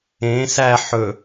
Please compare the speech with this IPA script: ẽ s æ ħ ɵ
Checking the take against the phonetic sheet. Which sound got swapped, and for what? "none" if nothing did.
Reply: none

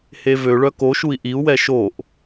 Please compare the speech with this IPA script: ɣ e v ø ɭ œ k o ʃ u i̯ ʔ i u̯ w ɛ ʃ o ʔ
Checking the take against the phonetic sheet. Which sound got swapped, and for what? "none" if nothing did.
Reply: ɣ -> h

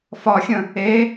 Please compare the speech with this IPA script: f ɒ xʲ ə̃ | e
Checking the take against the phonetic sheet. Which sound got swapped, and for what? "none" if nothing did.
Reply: none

